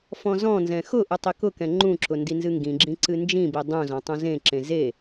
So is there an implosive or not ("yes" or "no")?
no